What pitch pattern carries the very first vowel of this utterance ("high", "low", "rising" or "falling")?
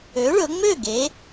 rising